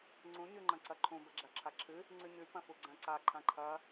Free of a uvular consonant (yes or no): yes